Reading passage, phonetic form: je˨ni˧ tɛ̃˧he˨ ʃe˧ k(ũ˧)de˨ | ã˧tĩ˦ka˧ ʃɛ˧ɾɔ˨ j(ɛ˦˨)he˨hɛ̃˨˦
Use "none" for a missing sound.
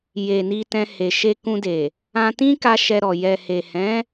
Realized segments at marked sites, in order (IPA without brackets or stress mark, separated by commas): ũ˧, ɛ˨